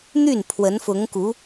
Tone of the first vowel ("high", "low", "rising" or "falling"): falling